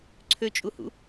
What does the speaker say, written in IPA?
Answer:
ǀʰøt͡ʃʼuhṵ

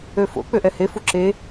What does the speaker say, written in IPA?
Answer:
øfo̰ k͡pøʔɛhe fuǁe

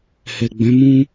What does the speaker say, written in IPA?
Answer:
hɛ˨ɡ͡bɛ̃˨˦mũ˦

